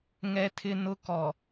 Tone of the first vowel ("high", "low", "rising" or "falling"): high